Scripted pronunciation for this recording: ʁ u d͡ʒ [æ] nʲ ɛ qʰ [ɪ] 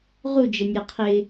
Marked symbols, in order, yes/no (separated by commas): no, yes